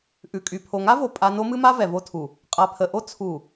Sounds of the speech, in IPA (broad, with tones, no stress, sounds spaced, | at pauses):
ʔ ʉ˨ kʼ y˨ pʰ o˨ ŋ a˦ v o˨ pʼ a˦ n o˦ m ɨ˦ m a˦ v ɛ˨ v o˦ tʰ u˨ | qʼ a˨ pʰ ə˨ ʔ o˦ t͡sʰ u˨